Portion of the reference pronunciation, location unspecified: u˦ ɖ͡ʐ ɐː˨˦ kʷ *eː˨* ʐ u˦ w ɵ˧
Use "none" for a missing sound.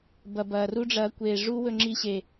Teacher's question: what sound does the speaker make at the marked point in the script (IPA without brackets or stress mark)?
eː˨